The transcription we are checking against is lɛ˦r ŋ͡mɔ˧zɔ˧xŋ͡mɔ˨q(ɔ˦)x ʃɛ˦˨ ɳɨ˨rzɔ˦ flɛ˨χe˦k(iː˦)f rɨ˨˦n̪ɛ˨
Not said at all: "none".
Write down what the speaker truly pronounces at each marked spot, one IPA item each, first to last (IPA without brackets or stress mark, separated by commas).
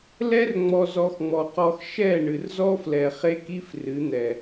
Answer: ɔ˧, i˦